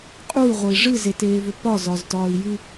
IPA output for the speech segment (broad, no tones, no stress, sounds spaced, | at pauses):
qʼ u y̯ ʁʷ ə i̯ ʐ ɨ z e t eː v ʏ p ɒ z ɒ z t ɒː i̯ j ɨ